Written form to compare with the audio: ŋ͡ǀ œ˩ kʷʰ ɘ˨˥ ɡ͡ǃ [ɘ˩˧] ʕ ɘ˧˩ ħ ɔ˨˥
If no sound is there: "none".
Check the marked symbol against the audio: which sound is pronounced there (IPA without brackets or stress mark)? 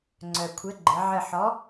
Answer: ɘ˩˧